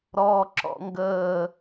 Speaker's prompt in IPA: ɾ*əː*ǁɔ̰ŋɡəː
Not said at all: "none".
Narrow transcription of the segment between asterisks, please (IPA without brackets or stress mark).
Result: ɔː